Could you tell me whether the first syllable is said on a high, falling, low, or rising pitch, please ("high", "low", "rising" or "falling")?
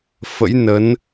rising